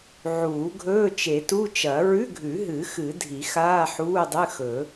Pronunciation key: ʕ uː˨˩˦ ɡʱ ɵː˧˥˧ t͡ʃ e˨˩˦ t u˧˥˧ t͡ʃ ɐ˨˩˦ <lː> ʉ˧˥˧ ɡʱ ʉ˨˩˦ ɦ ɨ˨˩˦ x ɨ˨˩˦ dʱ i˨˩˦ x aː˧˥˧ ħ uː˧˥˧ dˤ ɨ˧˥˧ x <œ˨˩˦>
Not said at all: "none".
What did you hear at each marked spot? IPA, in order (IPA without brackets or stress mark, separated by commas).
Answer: ɹ, ɵ˨˩˦